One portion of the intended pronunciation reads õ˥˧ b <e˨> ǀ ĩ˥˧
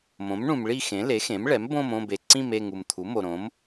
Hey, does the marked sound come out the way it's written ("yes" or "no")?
yes